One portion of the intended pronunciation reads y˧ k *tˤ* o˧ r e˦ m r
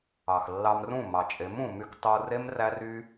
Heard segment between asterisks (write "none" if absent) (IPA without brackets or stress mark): tˤ